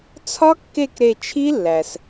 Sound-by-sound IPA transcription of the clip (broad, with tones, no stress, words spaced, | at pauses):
t͡sʰɒ˦˥kːe˦˨k ɾe˦˨ t͡ʃʰi˦˥lːæ˩s